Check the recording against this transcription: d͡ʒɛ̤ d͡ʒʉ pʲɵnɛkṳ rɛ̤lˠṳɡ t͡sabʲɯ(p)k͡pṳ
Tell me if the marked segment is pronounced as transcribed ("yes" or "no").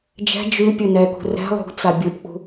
yes